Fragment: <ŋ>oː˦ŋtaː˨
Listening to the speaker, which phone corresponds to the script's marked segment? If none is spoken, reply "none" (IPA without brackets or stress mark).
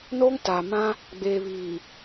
n